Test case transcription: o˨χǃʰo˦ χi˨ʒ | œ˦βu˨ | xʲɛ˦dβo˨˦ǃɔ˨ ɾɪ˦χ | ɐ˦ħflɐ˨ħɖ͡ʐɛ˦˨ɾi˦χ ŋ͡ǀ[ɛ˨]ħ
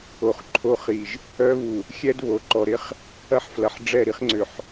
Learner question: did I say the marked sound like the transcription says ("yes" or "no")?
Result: no